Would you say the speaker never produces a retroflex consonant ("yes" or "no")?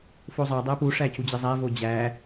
no